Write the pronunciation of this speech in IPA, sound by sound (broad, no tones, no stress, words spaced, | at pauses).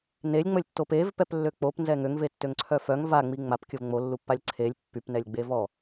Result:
nelʲŋ͡məlʲtːo pevpɛplːø k͡popnzɛ ŋøŋvetːøŋǀʰœ fœŋ vaŋ͡mi ŋ͡mapkʲəv ŋ͡molːupːalʲ ǀʰelʲ pːypnɛlʲɡ͡be vɔ